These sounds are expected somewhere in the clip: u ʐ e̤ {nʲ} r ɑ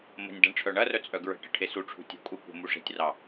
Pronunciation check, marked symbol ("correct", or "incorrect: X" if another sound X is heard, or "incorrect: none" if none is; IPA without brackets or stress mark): incorrect: tʲ